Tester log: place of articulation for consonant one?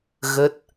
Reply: velar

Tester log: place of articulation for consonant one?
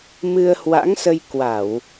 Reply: labial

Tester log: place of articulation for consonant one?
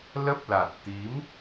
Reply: alveolar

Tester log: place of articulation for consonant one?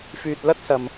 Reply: labial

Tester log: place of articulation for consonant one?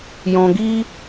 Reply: palatal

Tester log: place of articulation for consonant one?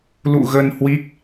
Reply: alveolar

